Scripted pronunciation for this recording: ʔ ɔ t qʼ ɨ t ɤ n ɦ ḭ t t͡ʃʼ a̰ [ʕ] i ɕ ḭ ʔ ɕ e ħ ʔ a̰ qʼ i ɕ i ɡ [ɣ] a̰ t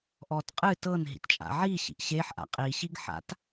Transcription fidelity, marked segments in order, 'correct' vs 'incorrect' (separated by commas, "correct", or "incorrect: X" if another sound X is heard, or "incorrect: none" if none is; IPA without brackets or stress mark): correct, incorrect: ħ